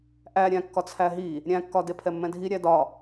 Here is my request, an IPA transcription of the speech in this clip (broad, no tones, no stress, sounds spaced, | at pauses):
ʔ æ ɾʲ æ̃ kː ɒ t͡sʰ æ ɦ i | ɾʲ æ̃ kː ɒ d e pʰ ɛ mː ɛ̃ dʱ i ɾʲ æ d ɒ